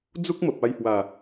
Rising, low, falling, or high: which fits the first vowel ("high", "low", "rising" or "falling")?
high